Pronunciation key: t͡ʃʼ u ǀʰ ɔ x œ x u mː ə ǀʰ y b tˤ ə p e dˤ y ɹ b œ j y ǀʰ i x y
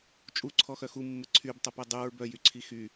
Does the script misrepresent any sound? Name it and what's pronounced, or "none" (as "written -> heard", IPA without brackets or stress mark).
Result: none